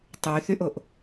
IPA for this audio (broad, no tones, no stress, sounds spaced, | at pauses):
tˤ y θ y ʔ o ʔ